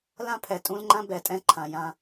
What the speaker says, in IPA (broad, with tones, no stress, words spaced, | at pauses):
lã˦ pʰɛ˨ tʼũ˦lŋ͡ǃã˦ bɛ˨tʼɛ̃˦ ǃʰã˨jã˦